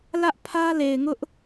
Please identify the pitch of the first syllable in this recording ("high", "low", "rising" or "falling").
high